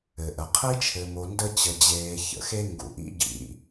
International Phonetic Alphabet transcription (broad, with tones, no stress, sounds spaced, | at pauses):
ɘ˩ ʔ ə˩ qʰ i˦ t͡ʃʰ ɘ˨ m o˨ n d ə˥ t͡ɕ ə˨ d͡ʑ eː˨ ç ə̰˨ x e˦ ŋ ɡ ṵ˨ ʔ ḭ˥ ɟ ḭ˨